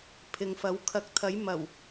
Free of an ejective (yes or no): yes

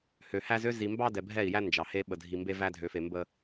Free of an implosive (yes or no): no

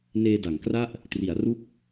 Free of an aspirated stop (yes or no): yes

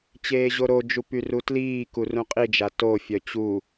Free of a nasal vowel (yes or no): no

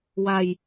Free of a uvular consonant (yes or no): yes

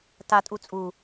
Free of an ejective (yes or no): no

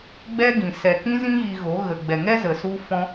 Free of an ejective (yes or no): yes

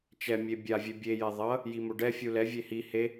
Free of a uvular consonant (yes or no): yes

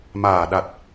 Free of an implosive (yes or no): no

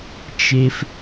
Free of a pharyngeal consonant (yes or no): yes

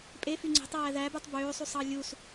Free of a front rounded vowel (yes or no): no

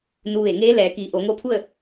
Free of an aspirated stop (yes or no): no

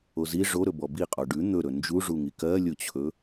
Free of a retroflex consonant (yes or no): no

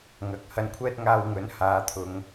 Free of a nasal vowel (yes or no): yes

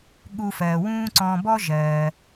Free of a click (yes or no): no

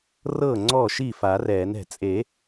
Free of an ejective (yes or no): no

